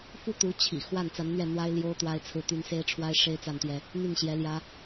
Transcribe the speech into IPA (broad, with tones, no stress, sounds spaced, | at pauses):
f u˥˩ t̪ u˧˥ t͡ɕʰ ḭ˨˩ x w a˥˩ n t͡s a˧˥ n n̪ ɥ ɛ˥˩ n̪ w a˥ ɪ̯ l j o˥ ʊ̯ t̪ w a˥ ɪ̯ t͡sʰ ɹ̩˥˩ t̪ y˥ n s e˥ ɪ̯ ʈ͡ʂʰ w a˥ ɪ̯ ʂ e˥ ɪ̯ t͡s a˥˩ n t̪ j ɛ˥ | n̪ y˥˩ n ɕ j ɛ˧˥ l j ä˥